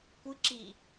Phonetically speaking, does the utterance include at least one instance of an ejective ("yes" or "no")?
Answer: no